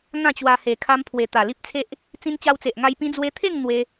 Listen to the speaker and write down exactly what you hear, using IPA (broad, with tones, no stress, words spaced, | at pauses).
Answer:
ŋã˥˧t͡ɕwa˧ he˨˩kʰa˧m pʰwe˨˩ t̪a˨˩li˦p̚t͡sʰe˦ʔ | t͡sĩ˧nt͡ɕa˧wt͡se˨ʔŋa˧j pĩ˧d͡zwe˧t̪ʰe˥˧ŋ n̪we˦